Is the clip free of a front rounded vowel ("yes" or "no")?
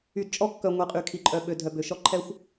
no